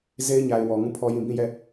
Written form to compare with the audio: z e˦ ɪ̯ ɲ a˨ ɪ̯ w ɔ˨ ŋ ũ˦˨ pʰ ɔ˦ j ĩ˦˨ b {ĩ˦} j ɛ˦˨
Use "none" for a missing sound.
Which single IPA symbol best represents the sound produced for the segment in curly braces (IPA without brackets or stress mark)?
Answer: ĩ˦˨